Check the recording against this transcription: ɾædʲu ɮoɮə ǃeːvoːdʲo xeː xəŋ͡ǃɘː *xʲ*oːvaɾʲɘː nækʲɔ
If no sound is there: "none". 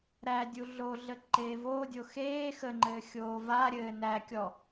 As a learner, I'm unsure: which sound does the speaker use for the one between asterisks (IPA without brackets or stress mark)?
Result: xʲ